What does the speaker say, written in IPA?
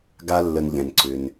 ɡ a˨ lː ə˩ n ʎ ɛ̃˩ n ǀ ʏ˩ n

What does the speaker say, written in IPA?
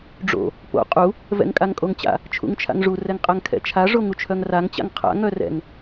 ɖ͡ʐ o̰ | p o̰ qʼ u | v ɛ̰ ŋ kʼ a ŋ kʼ o ŋ t͡ɕ a̰ | t͡ʃʰ ṵ ŋ t͡ʃʰ a̰ ŋ ʐ u r ɛ ŋ qʼ a ŋ kʰ ɛ̰ t͡ʃʰ a ʐ o ŋ u t͡ʃʰ œ ŋ r a ŋ t͡ɕ a̰ ŋ qʰ a̰ ŋ œ r ɛ̰ ŋ

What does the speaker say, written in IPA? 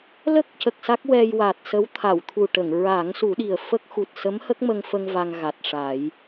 l ə˦˥ k̚ c ə˨˩ k̚ s a˦˥ k̚ w ɛ˧ j w a˨˩ t̚ s ə˧˥ w t̪ʰ a˨˩˨ w t̪ʰ u˨˩ ʈ ə˨˩˨ ŋ ɹ a˨˩˦ ŋ s u˨˩˦ ɗ i˨˩ ə̯ f ə˦˥ k̚ x u˨˩ t̚ s ə˧˥ m h ə˦˥ k̚ m ə˧ ŋ f ə˧ ŋ v a˧ ŋ ɣ a˨˩ t̚ ʂ a˨˩˦ j

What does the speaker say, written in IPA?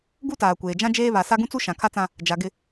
ɡ u˦ t aː˨ kʷ eː˨ d͡ʒ ã˦ d͡ʒ eː˦ β a˨ s a˦ ɡ ũ˦ t͡s u˦ ʃ ã˨ kʰ a˦ t͡s ã˦ | d͡ʒ a˨ ɡ ɪ˦˨

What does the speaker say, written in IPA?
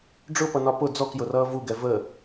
ɖ͡ʐ ʊ p ʌ n ɒ p ʊ d͡z ɔ k j ʊ r ʌː v u ɡ ɛ v ə

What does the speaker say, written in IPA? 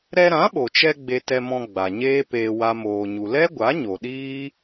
ɾ ɛ˧ ɾ ã˨˦ ɓ o˨ t͡ʃ ɛ˧ ɡ͡b e˧ t ɛ˧ m ɔ̃˧ ɡ͡b a˨ ɲ eː˦ p eː˧ w a˦ m oː˧ ɲ u˧ l ɛ˦ ɡʷ a˨˦ ɲ o˨ ɗ iː˦

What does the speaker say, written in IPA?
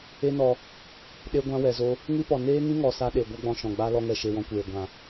e˦ n ɔ˧ | ɗ e˧ ɡʷ ã˧ w ɛ˨ z o˧ | ŋ ɨ˦ p ɔ˨ n eː˦ ŋ ĩ˦ ŋ ɔ˨ s a˧ ɗ e˨ ɡʷ a˦ ɡ͡b ɔ̃˧ ʃ ɔ̃˨ ɡ͡b a˦ l ɔ˧ ŋ ɛ˨ ʃ e˨ w ɔ̃˧ kʷ eː˨ ɡʷ ã˨

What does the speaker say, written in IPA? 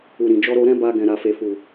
u˨ ɾ ĩ˨ d͡ʒ ɔ˧ ɾ o˧ ɾ ɛ̃˦ b a˧ ɡ ɛ̃˨ ɾ a˨ f e˨ f u˨

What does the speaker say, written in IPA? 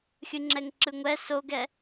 xʲ ɯ ŋ͡ǁ ɛ ŋ ǁ ɯ ŋʷ ɛ s o ɡ ɛ

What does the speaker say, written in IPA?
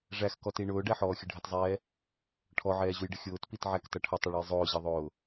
ʐ æ x k ɔ t i ɳ ʊː ɖ æ ħ ɔː xʲ ə ɖʱ ə t zˤ ɛː | ʈʰ ɔ ʕ ɛː ʑ u j ɖ ə xʲ ʊː t p i t ʕ æ k t ʌ ʈʰ ə tˤ ʊ ɭ u j zˤ ʊː ʑ ʌ ðˤ ʊː

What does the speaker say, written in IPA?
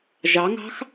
ʒ ɑ ŋ ɑ̤ x

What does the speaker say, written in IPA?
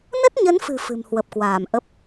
n ə˦˥ t̚ ɲ ə˨˦ n f ɨ̤˨˩ f ɨ̤˨˩ m h w ə˨˩ p̚ k w aː˧˩ m ʔ ə˦˥ p̚

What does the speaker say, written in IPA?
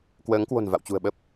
k w əː˨˦ ŋ k w o̤˨˩ n v a̰˧˨ w t͡ɕ ṳ˨˩ ə̯ ɓ ə˦˥ p̚

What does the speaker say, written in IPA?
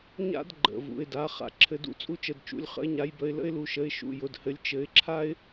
ɲ a̰˥ d ɡ͡ǃ ə̰˩˧˩ v ṵ˩˧˩ ɪ̯ d a˩˧˩ χ a̰˨˦ ǁʰ ɘ˨˦ d ṵ˨˦ t͡sʼ u˥ t͡ʃ ə˩˧˩ d t͡ʃ ṵ˩˧˩ lʲ χ ə̰˨˦ ɪ̯ ɲ a˨˦ j b ə˨˦ ɪ̯ l ə̰˥ ɪ̯ l u˨˦ ʃ ə˨˦ ɪ̯ ʃ ṵ˩˧˩ j ʊ˩˧˩ d h ɘ˨˦ lʲ t͡ʃ ɘ˨˦ ɪ̯ ǁʰ a˥ ɪ̯

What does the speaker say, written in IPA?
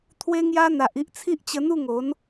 t̪ʰ w e˦ ŋ j a˦ n̪ a˨ ʔ i˦ ʔ t͡sʰ i˦ ʔ t͡ɕ ə˧ n̪ u˥˧ ŋ o˨˦ n

